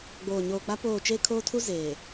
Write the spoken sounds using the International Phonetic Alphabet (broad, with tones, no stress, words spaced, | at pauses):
ɡ͡boː˨ɲoː˨ k͡pa˦ poː˦˨ t͡ʃe˦kʰoː˦tʰu˦ zeː˨